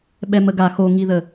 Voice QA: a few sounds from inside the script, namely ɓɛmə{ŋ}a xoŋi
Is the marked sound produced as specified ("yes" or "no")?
no